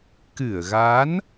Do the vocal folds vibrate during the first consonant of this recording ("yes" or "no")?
no